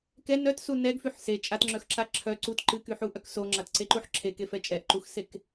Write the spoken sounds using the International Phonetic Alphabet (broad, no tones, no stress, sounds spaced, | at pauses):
k ɛ n œ t s u n ɛ ɡ f y ħ s e t͡ʃʼ a t ŋ͡ǁ œ x ǁ a ǁʰ œ ǀ u t ǃ ɨ k y ħ u ʔ œ k s o ŋ͡ǁ a t ǀ e ǃ u ħ ǁʰ e k e f ɛ t͡ʃʼ ɛ ʔ ǃ u x s e k